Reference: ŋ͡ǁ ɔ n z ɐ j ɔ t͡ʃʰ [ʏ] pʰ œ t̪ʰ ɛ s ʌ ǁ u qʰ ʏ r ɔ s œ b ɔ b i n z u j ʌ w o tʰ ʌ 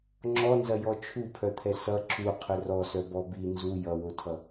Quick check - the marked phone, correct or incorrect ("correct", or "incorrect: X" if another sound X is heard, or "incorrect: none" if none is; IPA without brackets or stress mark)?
incorrect: u